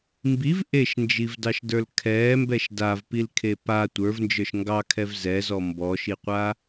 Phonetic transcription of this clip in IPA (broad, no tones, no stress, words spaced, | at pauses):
mbiv ʔeʃnd͡ʒivdɑʃdə˞l kʰɛːmbɛʃ davpilkʰe pa tʷə˞vnd͡ʒə˞ʃ ŋɡɑkʰɛv zɛzɔ mbɔʃiqʷa